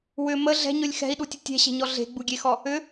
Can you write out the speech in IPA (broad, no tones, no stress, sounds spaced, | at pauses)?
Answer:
w ʏ m ə ɮ ɛ̤ ɲ ɵ lʲ x ɛ̤ i̯ ɗ u tʲ ə tʲ ɛ̤ ɕ e̤ ɲ ɔ ɮ e̤ ɡ͡b u ɡʲ e x ɔ | ʏ